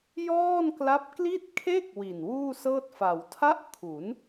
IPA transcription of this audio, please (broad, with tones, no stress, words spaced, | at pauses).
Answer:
jɔː˥˩nkla˦˥p̚ kli˥˩t̚kʰe˥˩k̚ wi˨˩nwuː˥˩sɤː˥˩t̚ fa˩˦w tʰa˦˥ʔ kʰu˩˦n